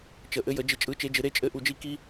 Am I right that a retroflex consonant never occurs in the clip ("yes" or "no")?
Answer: yes